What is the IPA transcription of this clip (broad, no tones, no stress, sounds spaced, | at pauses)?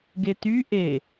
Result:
ɡ e t y ʔ e